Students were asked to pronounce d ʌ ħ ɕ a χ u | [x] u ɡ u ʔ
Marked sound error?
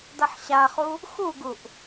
no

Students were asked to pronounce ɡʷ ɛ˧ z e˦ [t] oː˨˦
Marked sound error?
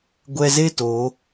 no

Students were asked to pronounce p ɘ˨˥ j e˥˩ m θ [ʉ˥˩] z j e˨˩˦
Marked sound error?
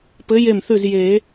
no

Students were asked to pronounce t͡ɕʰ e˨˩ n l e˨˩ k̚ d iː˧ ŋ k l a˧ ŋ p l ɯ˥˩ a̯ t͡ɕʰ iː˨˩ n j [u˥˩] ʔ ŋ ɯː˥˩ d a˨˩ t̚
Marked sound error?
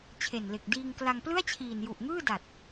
yes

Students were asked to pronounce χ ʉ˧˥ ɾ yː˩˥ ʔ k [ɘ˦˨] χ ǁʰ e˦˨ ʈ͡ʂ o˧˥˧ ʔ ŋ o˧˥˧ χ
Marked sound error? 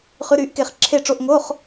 yes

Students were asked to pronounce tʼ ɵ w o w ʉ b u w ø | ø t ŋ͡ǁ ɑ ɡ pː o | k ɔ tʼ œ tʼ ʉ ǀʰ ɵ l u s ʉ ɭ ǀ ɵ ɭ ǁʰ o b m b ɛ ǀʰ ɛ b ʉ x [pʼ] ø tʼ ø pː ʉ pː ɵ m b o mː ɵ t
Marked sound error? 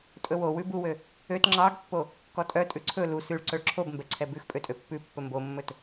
no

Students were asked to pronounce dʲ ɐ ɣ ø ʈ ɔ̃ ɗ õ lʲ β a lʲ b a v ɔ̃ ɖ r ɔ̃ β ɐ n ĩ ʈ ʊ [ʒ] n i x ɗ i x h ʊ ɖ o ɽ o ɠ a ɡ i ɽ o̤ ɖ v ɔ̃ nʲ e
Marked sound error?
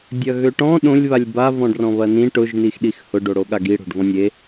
no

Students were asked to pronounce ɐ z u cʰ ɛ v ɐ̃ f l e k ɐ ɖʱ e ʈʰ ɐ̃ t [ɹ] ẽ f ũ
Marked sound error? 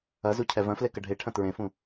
no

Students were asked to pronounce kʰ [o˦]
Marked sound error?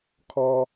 yes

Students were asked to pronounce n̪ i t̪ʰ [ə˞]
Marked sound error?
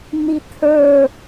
no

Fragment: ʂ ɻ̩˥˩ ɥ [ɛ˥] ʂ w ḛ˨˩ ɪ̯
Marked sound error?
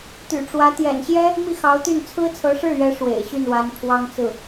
yes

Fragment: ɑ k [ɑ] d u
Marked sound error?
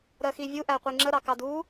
no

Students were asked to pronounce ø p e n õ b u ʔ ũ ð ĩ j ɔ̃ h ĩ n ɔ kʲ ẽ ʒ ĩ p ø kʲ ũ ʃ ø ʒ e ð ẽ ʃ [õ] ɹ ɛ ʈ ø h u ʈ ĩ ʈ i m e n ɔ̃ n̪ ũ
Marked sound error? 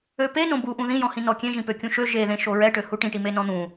yes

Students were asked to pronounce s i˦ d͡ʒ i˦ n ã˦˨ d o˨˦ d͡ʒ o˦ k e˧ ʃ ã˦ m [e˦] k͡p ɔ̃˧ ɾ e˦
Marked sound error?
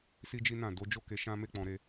no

